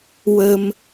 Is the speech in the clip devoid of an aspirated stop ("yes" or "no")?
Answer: yes